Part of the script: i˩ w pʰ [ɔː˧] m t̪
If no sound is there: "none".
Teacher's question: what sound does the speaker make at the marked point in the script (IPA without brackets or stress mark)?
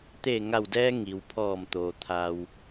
ɔː˧˩